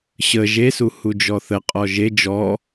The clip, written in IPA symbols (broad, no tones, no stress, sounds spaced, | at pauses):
ɕ ə ʒ e s u h u d͡ʒ ɔ θ ə qʼ ɔ ʒ e d͡ʒ ɔ